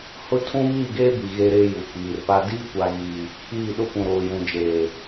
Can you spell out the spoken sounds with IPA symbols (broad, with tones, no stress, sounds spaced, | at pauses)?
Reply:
h ʊ˦ tʰ ũ˦ β iː˦˨ ɡ eː˦ b i˨ ɣ eː˦ ɾ eː˦ j u˨ k͡p iː˨ r p a˦ d iː˦ kʷ a˨ ɣ iː˨ | iː˦˨ ɗ ʊ˦ p ũ˨ ɾ oː˨ j ũ˨ d͡ʒ eː˨